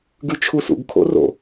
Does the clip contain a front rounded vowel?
yes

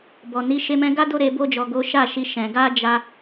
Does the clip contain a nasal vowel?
yes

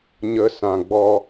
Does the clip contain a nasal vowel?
yes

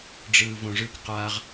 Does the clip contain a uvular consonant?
yes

